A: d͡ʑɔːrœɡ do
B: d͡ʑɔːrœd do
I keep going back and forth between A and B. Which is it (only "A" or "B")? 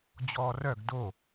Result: A